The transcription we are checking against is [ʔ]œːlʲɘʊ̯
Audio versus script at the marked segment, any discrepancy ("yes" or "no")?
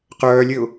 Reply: yes